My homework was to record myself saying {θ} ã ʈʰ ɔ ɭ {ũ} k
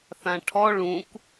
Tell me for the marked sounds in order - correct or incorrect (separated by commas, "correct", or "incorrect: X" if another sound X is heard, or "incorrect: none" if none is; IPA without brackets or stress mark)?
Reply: correct, correct